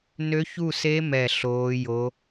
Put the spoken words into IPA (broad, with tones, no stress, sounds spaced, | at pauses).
n ø˦˥ ç u˥˧ s e˦˥ m ɛ˥˧ ɬ oː˦˥ j o˦˥